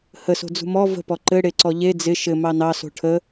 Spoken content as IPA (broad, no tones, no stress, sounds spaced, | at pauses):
h ə s o̤ d͡z ṳ m ɔ v ə̤ p ɔ ǃ ɘ ɽ e ǀ ɔ ʎ e d͡z ɪ ʃ ɘ m ɑ n ɑ s o̤ ʈʰ ə